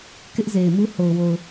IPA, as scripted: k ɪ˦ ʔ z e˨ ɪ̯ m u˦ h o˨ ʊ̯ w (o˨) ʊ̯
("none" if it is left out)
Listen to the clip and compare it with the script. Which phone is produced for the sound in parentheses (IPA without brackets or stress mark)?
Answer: o˨